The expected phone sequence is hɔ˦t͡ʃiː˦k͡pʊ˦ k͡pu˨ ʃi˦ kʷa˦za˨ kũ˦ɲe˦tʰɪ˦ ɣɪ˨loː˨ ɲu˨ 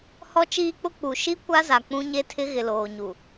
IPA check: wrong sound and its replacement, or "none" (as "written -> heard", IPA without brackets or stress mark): k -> k͡p